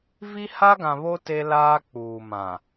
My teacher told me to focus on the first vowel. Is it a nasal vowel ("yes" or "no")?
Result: no